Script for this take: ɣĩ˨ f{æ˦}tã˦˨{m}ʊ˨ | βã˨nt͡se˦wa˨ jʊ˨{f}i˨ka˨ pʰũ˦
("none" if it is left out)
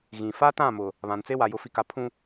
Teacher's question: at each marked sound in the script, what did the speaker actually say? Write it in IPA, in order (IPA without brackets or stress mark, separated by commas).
a˦, m, f